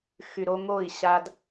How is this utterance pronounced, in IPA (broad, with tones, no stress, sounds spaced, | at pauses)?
x y˨ ɾ o˦ ŋ o˦˨ i̯ ɕ a˦ d